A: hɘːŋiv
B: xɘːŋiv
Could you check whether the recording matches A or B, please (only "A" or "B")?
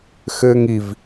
B